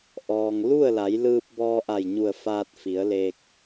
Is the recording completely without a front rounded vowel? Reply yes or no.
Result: yes